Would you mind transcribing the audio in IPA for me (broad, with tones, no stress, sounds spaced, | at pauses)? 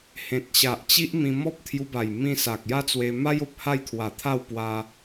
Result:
h ẽ˨ t̚ ɕ a˨ ʔ t͡ɕ i˦ ʔ m ĩ˧ m ɔ˦ p̚ t̪ʰ j u˧ b a˨˩ j m ĩ˧ s a˨ k̚ j a˥˧ t͡s w e˧ m a˦ j o˨ p̚ h a˥˧ j t̪ʰ w a˨˩ t̪ʰ a˥˧ w p w a˧